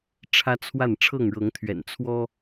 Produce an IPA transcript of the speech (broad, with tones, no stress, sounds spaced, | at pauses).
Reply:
ʈ͡ʂʰ ä˦ t͡sʰ w a˥˨ n ʈ͡ʂʰ ɤ˥˨ ŋ ɻ ɤ˨˦ ŋ t̪ʰ ɥ ɛ̰˨˩ n t͡sʰ w ɔ˦